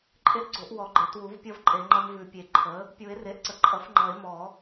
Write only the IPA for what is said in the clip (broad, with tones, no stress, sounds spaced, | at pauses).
ǃʼ e˦ ʔ ɡ͡ǀ o˨˩˦ ʔ w ɔ˨˩˦ ɡ͡ǃ e˩˥ t w u˩˥ v pʲ ʌ˦ v ǃʼ e˨˩˦ ŋ͡ǃ ʌ˦ m v ʉ˨˩˦ pʲ e˨˩˦ ǃʰ ə˩˥ | pʲ u˨˩˦ e̯ r e˩˥ ʔ ǀ ə˩˥ ǃʼ ʌ˩˥ f ŋ͡ǃ ʌ˨˩˦ e̯ m ɔ˨˩˦